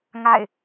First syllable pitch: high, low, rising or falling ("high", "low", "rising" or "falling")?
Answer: falling